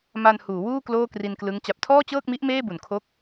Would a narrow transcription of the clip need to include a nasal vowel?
no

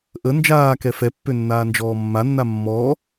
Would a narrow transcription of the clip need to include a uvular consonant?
no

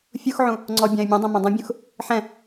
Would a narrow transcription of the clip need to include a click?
yes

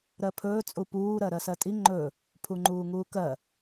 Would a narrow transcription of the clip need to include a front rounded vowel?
no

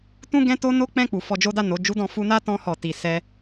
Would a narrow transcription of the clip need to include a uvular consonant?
no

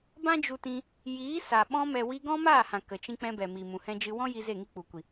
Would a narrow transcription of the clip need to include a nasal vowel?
yes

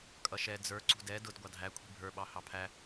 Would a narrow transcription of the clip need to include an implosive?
yes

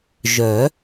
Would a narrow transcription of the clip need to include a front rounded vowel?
yes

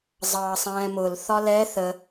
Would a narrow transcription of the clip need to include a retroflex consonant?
no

